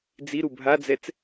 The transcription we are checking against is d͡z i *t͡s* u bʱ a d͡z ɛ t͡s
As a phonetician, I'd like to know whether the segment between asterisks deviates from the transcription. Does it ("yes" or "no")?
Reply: yes